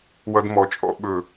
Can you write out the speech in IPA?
w ʌ˧ d m ɔ˨ t͡ʃʼ ɔ̰˧ ɓ ɵ˨

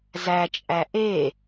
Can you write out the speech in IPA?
z æ t͡ʃʼ æ ʔ e

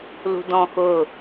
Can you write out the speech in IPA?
l ṳ d ɔ̃ x ʊ

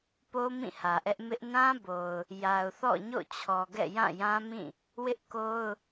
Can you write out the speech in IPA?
p o˦ m ĩ˦˨ h ä˨ ʔ ɛ˦ ʔ m ɪ˦ ʔ n ã˦ b o˨ ʊ̯ | j a˨ ʊ̯ θ ɔ̰˦˨ ɲ o̰˦˨ t͡ɕʰ ɔ˨ ɡ ɛ̰˦˨ j ã˦˨ j ã˦ m ĩ˦˨ | w ɪ˦ ʔ k o˦ ʊ̯

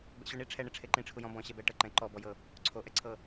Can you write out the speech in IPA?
b ɛ̰ ɕ u ɳ i ʈ͡ʂʰ ɛ ɳ e ʈ͡ʂʰ e ǃ ĩ ʈ͡ʂʰ u j ɔ̃ b ɔ̃ ɕ ɛ b ɛ ʈ ɤ ǃ ɛ̃ ǃ ɔ b ɔ j ɤ | ǀʰ o ʔ ɛ ǀʰ ɤ

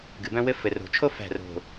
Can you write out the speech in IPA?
ɡ ɨ˨ b œ̃˦ w ɘ˦ f ɘ˨ r o̤˨ t͡ʃʰ o˦ f æ̤˦˨ r o̤˨

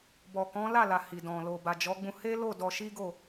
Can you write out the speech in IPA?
b ɔ˨ k ɔ̃˨˦ l a˦˨ l a˨ h i˨ d ɔ̃˨ l o˨ b a˨ d͡ʒ ɔ˨˦ ɡ͡b ũ˧ h e˦ l o˦˨ d ɔ˧ ʃ i˦ ɡ o˦˨

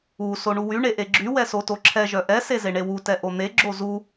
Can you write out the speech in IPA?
u s o ɳ u w y ɳ e ʔ e ɡ͡ǁ y w ɛ s o t o ǁʰ ɛ ʒ œ ʔ ɛ s e z e ɳ e w u t ɛ ʔ o n̪ e ɡ͡ǁ o z u

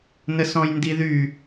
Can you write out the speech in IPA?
n ə s ɔ̃ j n d i ð y

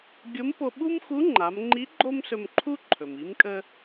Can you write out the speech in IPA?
ɡʲ o˧˥ m p o˧ ɓ u˥ m x u˧˥ ŋ͡ǃ a˩˧ m ŋ͡ǃ i˧˥ ɡ͡ǃ o˥ m s ɵ˧ m ǃʰ u˥ ǃʰ ɵ˩ m i˧˥ m kʼ ə˥

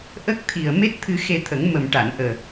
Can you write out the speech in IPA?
ʔ ə˦˥ k̚ t̪ʰ i˨˩ ə̯ m e˦˥ t̚ t̪ʰ ɨ˧ x e˧ t̪ʰ ə˨˩˦ ŋ m ə˨˩ m ʈ a˨˩˨ n ʔ əː˨˩

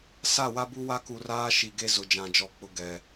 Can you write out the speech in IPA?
s a˦˨ w a˦ b u˦ w a˦ k u˨ r aː˦ ʃ i˨ ɡ e˦ z ʊ˨ d͡ʒ ã˨ d͡ʒ ɔ˨ k͡p ʊ˨ ɡ ɛ˨

